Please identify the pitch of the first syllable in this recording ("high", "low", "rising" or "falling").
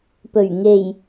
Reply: low